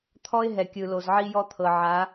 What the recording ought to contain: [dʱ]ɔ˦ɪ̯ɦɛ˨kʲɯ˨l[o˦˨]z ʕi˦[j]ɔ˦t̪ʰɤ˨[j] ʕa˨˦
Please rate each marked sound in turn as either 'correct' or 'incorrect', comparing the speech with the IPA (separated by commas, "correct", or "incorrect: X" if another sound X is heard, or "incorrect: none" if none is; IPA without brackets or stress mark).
incorrect: t̪ʰ, incorrect: o˨, correct, incorrect: none